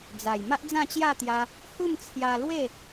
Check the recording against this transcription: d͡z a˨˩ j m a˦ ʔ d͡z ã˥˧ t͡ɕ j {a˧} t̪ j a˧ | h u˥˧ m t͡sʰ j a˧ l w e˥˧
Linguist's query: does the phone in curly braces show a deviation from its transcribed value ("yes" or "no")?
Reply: yes